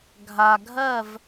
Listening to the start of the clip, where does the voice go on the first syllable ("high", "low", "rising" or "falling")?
low